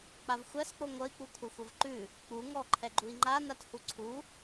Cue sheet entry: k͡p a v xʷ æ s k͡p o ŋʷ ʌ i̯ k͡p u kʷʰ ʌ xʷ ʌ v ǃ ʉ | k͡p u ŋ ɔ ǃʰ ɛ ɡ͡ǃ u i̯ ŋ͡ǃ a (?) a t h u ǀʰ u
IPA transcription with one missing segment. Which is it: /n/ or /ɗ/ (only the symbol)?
n